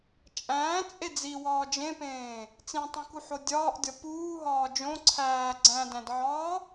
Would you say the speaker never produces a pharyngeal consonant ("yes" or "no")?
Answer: no